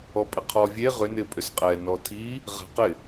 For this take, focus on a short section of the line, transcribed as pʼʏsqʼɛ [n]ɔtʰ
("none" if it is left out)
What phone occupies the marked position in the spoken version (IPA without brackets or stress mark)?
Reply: n